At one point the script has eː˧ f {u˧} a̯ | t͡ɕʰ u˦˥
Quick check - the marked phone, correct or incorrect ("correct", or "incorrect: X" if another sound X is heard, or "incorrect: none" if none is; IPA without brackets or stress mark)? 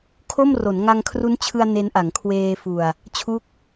incorrect: u˨˩